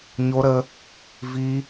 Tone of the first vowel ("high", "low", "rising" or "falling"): high